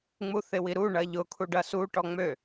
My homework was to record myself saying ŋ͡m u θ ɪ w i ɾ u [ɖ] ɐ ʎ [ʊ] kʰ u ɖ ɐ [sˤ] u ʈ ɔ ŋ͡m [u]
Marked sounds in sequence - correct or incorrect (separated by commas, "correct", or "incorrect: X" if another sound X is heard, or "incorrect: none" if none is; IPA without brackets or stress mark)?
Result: incorrect: ɳ, correct, incorrect: s, incorrect: ø